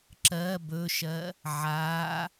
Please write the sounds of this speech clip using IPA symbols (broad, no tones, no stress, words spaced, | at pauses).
ǁɜ bɵʃɜ | ʕaː